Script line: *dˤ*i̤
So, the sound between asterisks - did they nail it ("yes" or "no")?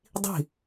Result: yes